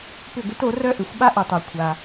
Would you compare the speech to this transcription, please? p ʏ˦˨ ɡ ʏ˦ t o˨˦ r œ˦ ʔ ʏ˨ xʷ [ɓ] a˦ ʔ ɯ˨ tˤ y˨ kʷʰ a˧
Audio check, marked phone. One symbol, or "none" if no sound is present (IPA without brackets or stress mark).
ɓ